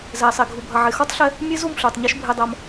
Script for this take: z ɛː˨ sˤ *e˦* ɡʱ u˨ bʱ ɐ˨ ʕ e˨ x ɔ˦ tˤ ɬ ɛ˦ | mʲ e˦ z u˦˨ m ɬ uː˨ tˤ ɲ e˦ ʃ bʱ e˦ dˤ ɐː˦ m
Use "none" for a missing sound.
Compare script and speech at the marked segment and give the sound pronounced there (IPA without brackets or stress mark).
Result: e˨